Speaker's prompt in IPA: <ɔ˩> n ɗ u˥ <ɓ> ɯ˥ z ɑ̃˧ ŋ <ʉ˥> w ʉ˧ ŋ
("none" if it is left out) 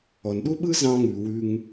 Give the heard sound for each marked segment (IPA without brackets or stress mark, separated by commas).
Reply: ɔ˩, ɓ, ʉ˩